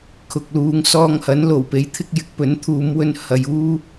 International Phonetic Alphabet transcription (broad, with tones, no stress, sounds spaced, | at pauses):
kʰ ʊ˨ k̚ l uː˨˧ ŋ s ɔː˧ ŋ h ɐ˨˥ n l o˨˩ w p e˨˥ j t̪ʰ ɪ˧ k̚ j ɪ˨˥ k̚ p ɵ˨˥ n t̪ʰ uː˨˧ m w ɵ˧ n h ɐ˨ j uː˧